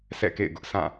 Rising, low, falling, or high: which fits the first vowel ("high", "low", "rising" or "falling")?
falling